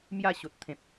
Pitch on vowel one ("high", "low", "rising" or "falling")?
falling